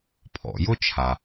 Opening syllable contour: low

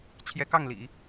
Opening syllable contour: rising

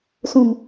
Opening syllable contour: low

